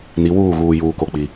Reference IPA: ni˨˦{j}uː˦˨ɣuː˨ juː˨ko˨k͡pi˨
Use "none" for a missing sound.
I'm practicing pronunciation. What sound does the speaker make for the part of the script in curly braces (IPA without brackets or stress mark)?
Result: w